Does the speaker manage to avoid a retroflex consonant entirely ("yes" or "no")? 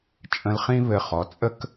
yes